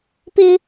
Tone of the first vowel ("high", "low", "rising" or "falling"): high